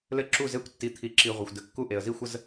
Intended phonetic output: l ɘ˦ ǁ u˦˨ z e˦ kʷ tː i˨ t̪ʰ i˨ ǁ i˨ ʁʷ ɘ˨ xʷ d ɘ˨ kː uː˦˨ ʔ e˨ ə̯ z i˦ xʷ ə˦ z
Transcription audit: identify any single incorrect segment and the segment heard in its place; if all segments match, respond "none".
uː˦˨ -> u˦˨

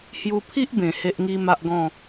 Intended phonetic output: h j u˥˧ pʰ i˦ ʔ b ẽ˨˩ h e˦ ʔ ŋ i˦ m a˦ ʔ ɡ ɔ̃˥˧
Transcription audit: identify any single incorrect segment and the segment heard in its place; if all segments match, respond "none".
u˥˧ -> u˧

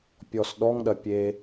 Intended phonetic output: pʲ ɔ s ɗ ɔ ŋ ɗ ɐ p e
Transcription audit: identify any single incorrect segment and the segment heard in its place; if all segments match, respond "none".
p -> pʲ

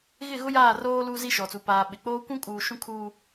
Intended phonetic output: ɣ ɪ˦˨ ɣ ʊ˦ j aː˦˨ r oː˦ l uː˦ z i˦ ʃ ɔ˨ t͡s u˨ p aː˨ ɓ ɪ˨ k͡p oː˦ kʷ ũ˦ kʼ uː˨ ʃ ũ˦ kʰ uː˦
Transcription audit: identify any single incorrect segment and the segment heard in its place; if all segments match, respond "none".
none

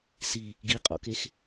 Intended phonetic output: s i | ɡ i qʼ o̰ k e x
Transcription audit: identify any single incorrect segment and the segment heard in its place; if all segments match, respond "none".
none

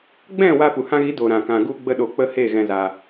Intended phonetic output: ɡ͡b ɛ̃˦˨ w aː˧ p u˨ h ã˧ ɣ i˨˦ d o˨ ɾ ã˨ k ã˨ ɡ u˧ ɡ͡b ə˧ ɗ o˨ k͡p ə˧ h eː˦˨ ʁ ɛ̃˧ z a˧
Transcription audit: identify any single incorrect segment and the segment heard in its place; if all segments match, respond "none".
ʁ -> ɣ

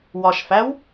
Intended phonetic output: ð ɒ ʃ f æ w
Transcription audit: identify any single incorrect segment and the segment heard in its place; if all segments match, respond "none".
ð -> w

